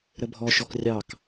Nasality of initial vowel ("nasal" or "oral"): oral